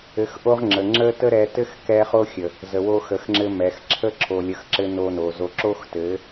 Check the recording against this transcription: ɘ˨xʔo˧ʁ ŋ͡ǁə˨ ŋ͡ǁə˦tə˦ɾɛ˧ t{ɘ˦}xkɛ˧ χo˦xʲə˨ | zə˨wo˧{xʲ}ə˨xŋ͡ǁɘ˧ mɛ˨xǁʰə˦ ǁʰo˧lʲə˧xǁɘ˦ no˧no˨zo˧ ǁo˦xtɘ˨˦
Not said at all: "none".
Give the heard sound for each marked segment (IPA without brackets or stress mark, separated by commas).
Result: ɘ˦, x